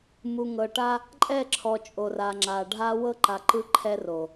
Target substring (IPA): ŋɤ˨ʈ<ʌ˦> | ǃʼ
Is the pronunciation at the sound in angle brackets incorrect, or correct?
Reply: incorrect